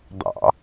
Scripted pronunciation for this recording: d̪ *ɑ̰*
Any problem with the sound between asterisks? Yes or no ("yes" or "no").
no